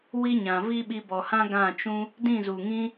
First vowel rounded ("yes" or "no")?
no